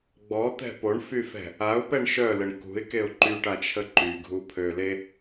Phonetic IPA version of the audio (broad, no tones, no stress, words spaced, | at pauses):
ɡ͡bɔt̪ɛ̤ poɳfyfɛ̤ | aʊ̯pɛɳ ʃœləɳ kṳɪ̯keʊ̯ ǃyʈat͡ʃʰə ǃyɡʱupʰøle